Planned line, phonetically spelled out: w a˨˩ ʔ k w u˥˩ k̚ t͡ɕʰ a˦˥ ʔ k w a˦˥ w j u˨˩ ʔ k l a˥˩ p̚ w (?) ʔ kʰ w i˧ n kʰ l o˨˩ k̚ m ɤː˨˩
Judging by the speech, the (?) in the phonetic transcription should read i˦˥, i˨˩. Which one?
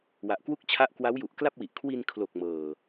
i˨˩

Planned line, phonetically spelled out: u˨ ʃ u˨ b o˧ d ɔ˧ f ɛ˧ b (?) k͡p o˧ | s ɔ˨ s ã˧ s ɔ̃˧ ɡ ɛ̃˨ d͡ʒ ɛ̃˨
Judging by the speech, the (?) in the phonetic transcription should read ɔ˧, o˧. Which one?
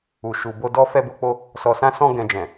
o˧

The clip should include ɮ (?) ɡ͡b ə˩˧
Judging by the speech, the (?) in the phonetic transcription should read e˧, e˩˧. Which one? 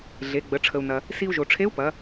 e˩˧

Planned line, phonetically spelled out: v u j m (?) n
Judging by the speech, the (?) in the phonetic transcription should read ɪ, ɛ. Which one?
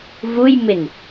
ɪ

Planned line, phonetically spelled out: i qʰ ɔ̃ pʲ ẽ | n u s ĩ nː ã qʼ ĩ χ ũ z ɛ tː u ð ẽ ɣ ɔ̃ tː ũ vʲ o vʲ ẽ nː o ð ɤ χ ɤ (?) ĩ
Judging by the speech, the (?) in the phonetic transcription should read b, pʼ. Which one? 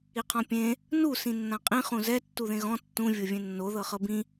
b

